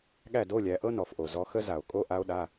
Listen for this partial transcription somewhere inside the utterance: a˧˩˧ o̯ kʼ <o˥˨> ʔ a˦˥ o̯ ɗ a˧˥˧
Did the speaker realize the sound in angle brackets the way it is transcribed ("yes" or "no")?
no